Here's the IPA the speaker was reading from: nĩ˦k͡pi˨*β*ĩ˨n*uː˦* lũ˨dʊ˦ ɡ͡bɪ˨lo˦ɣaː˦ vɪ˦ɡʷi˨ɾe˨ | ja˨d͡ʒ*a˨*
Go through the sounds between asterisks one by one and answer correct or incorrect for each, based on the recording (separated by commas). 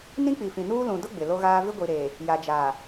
incorrect, correct, correct